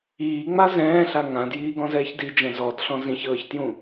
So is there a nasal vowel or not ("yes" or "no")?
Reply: yes